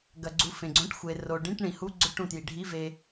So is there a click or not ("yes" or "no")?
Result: yes